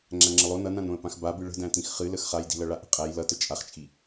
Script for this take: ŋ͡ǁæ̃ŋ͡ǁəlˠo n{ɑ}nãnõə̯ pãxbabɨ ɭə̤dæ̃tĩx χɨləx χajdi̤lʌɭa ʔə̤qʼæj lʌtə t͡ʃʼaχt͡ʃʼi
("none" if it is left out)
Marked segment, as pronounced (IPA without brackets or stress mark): ʌ